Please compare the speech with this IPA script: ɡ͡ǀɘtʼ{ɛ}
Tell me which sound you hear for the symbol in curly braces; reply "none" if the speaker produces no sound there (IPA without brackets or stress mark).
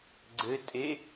e